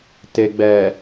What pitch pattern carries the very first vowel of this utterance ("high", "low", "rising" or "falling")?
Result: low